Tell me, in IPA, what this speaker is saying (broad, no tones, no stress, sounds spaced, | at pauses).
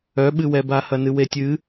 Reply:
œ ɓ ɨ w ɛ b a h ɐ n ɨ w e tʲ ɨ